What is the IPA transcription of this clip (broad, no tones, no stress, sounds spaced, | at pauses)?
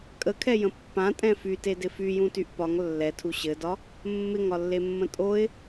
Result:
kʼ ə kʰ ɛ j ə̃ pː ã tʼ ɛ̃ f y t e d ɪ f y j ũ t y ʔ p ɒ ŋ lː ɛ tʰ u ɕ ɘ d ɒ | mː ɪ ŋ ɒ lː e mː ə̃ tʼ o ɪ̯